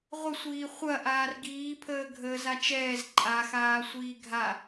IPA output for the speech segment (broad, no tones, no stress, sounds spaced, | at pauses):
ʁʷ ə sʷ iː χʷ ɐ ʔ aː r ɡ iː pʰ əː ɡʱ əː z a t͡ʃ ɛː z ǃʼ a x aː sʷ iː ɡʱ a